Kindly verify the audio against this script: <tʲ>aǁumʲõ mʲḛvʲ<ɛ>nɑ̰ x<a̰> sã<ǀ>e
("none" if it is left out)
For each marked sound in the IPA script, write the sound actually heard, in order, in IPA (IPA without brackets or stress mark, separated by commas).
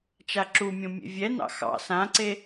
t͡ʃ, ɛ, ɑ̰, ǀ